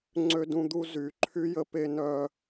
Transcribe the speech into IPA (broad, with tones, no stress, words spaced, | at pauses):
ŋ͡ǀø˦dũ˦d̪u˦ zy˨˩˦ǃʰy˦jə˦ pe˦nœ˦